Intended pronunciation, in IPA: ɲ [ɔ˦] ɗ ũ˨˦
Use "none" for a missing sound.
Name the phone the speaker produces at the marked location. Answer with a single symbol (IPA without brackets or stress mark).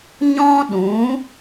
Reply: ɔ̃˦